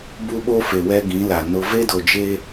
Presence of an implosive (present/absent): present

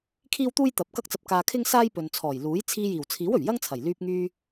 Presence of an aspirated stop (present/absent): present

